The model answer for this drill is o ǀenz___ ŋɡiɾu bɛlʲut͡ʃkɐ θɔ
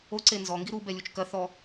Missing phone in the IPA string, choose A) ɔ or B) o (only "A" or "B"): A